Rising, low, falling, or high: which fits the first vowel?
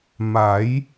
rising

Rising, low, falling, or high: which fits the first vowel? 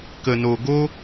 low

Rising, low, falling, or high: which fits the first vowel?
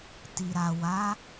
low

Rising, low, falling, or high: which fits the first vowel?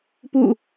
falling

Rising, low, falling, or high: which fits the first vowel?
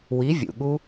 rising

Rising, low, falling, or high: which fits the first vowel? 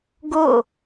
falling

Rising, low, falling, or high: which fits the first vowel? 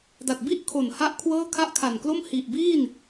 low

